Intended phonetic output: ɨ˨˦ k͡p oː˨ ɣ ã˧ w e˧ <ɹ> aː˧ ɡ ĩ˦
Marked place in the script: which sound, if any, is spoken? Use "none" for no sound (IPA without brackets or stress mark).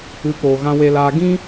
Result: l